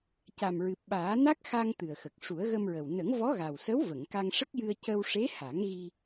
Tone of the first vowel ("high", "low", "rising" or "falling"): low